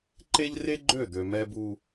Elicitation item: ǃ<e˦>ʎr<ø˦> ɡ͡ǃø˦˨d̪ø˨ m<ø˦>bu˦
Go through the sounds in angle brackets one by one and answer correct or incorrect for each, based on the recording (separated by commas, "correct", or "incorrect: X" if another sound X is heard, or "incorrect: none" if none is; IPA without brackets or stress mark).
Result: correct, incorrect: e˦, incorrect: ɛ˦